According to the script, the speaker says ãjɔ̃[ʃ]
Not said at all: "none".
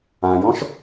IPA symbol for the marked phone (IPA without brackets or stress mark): ʃ